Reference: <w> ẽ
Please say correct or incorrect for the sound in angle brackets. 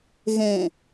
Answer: incorrect